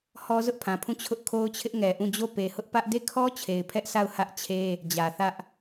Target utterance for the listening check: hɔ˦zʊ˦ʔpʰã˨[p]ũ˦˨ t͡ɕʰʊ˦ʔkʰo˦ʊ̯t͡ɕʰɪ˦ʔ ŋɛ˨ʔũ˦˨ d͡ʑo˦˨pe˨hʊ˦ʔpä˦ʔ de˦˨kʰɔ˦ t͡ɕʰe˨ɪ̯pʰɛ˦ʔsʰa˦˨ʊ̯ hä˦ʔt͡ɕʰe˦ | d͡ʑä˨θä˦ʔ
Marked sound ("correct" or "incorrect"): incorrect